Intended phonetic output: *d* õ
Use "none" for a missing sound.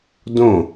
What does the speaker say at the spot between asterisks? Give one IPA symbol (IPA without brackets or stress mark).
d